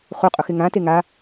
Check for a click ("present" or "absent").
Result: absent